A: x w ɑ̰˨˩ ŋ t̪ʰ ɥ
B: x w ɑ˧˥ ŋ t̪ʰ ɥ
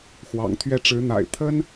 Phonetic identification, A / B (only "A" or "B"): A